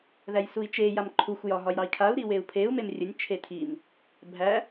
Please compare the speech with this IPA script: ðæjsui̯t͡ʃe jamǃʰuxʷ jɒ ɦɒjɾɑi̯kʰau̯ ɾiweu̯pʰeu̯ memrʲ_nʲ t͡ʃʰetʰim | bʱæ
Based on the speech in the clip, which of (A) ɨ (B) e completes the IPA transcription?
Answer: A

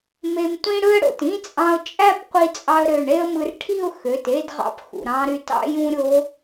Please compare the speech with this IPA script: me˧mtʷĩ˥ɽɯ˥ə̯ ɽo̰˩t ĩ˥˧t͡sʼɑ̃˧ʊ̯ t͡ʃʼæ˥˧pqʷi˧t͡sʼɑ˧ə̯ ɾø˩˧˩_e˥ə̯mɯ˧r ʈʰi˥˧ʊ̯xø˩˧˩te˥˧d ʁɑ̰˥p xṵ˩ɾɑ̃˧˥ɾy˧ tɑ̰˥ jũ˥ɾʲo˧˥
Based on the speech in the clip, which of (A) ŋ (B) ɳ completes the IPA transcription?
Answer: B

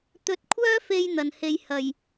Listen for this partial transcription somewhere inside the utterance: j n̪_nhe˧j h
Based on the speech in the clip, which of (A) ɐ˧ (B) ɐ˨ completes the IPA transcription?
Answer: B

